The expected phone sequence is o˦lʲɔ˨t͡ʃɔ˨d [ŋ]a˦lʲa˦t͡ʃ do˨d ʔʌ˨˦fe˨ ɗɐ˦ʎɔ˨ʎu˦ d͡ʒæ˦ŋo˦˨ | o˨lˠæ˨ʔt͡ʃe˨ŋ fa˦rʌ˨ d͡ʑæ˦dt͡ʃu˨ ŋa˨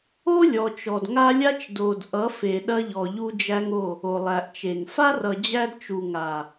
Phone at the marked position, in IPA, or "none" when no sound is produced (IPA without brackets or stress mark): ŋ